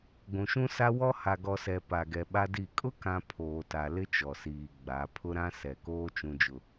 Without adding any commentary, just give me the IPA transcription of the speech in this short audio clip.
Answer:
ɡʷũ˨ʃũ˦sa˦ wɔ˦ ha˨ɡɔ˨sɛ˨ pa˨ɡɛ˨ ɓa˦di˦˨ kʼʊ˦kã˨ pʰoː˨ta˨ lɪ˦t͡ʃɔ˨siː˨ ɡ͡ba˨˦ pʰʊ˦ɾã˦ sɛ˨koː˦ t͡ʃũ˦d͡ʒʊ˦

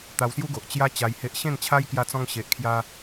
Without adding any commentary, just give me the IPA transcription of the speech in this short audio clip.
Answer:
t̪a˧wsju˦ɡo˨ʔ t͡ɕja˦ t͡ɕa˧jhe˦ʔ ɕẽ˥˧nt͡ɕʰa˦jkja˧t͡sɔ̃˧ŋ ɕe˨ʔkʰja˧

